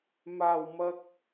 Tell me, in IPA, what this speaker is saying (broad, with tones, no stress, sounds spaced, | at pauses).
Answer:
m aː˨˩ w m ɐ˨ k̚